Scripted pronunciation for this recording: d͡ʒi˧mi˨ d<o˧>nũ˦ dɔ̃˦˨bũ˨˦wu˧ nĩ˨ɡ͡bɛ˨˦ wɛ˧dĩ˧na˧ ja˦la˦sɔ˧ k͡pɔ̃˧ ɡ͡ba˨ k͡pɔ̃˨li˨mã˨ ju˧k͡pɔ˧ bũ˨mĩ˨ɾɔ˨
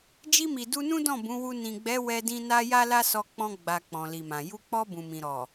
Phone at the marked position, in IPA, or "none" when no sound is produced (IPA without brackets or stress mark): u˧